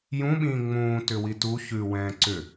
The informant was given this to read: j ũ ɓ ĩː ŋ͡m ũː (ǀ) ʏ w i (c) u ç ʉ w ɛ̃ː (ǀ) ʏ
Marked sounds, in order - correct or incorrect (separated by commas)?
incorrect, incorrect, correct